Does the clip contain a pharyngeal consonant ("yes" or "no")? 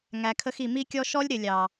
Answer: no